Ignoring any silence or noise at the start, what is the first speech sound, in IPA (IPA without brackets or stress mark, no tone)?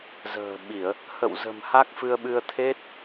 z